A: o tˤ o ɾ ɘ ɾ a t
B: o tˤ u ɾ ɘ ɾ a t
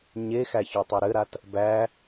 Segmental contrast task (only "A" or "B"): B